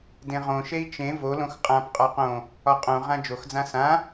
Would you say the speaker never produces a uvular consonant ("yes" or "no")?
no